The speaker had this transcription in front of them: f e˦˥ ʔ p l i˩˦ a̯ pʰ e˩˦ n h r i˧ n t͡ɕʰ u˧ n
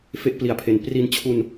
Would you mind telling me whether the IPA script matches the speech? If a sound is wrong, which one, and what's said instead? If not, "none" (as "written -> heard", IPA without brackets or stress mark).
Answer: h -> p